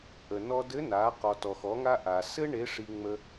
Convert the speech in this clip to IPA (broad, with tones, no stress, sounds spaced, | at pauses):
ʔ ə˩ n ɔ˧ d ɘ˧˥ n a˩˧ q ɔ˩ t ɔ˩ x ɔ˩˧ ŋ a˧ ʔ a˩ s ɘ˥ ɳ e˧˥ ʂ i˧ ŋ͡m ə˧